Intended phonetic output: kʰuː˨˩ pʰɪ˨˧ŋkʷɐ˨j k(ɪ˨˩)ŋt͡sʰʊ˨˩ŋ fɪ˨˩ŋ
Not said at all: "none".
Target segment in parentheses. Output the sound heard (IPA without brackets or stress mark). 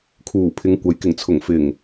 ɪ˨˩